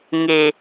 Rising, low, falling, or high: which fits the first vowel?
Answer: low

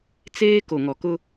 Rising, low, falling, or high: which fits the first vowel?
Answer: high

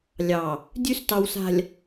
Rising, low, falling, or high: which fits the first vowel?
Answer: low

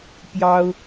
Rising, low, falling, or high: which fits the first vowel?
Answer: high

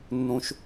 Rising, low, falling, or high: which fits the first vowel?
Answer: high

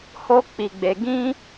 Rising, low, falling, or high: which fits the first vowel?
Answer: high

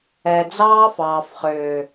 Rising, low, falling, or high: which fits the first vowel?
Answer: low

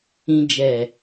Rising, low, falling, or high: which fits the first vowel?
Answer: low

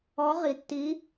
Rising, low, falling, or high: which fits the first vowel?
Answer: rising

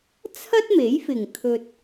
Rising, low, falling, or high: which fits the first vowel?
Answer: high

